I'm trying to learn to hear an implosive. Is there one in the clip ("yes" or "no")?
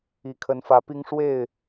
no